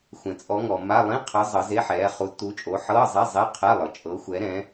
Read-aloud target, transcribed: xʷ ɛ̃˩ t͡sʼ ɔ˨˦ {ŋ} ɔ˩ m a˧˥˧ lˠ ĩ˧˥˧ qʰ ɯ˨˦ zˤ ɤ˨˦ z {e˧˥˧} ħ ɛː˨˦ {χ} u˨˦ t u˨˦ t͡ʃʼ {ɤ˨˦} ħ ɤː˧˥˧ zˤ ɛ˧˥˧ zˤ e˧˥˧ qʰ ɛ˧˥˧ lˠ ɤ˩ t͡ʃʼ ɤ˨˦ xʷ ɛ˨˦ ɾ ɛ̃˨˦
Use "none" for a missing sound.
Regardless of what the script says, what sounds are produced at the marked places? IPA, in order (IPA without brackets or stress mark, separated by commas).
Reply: ŋ, e˧˥˧, χ, o˨˦